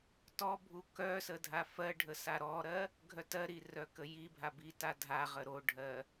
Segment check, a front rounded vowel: present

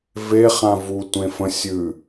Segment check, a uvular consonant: present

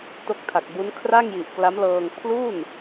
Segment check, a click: absent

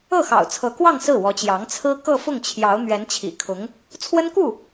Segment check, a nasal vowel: absent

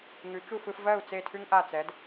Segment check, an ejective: absent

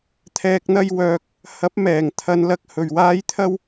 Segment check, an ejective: absent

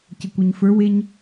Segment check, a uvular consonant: absent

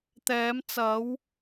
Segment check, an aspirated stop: absent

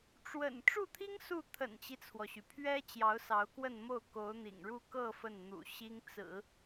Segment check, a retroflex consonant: present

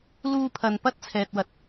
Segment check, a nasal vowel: absent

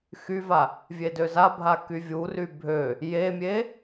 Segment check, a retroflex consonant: absent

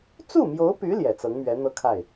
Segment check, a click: absent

